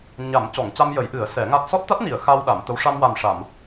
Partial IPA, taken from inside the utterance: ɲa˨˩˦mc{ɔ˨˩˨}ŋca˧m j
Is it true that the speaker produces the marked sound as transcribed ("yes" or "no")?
yes